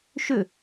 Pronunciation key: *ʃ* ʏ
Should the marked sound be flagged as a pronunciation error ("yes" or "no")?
no